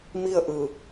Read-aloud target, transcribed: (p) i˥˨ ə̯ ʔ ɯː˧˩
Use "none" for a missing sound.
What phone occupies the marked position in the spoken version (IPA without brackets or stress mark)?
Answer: m